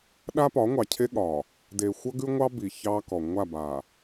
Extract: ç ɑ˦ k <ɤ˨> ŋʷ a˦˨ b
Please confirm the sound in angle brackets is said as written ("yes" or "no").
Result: no